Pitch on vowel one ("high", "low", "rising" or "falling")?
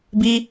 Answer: high